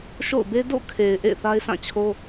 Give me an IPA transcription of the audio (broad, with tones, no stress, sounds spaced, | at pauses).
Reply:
ʃ o̰˦˨ ʊ̯ b e˦ d o̰˦˨ kʰ e˨ ɪ̯ ʔ ḛ˦˨ ɪ̯ θ a˦ ɪ̯ s ã˦˨ t͡ɕʰ o˦